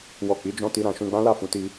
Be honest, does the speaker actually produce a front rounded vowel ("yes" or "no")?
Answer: no